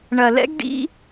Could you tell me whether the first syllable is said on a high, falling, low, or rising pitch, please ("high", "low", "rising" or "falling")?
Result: low